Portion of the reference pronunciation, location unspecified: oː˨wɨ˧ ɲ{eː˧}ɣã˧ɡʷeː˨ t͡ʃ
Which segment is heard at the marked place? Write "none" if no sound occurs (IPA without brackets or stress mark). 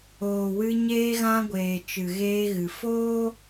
eː˧